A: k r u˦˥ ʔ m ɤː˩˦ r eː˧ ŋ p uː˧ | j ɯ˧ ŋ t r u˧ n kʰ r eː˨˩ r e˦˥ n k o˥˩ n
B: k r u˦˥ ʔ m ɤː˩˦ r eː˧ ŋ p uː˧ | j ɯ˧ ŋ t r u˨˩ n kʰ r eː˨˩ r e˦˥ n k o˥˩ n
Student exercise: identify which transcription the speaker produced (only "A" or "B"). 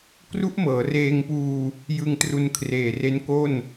A